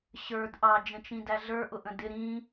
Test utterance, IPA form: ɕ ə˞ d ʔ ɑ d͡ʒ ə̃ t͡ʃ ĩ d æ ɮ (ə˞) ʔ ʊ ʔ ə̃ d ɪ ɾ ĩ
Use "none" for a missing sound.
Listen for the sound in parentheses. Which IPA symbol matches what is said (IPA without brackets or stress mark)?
ə˞